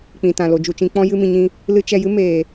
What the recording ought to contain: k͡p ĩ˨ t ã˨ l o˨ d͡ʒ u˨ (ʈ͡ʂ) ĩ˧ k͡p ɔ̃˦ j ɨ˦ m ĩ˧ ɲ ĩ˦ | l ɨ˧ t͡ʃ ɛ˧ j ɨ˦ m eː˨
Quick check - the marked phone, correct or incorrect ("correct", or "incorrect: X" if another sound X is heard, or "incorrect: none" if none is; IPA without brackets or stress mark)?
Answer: incorrect: t͡ʃ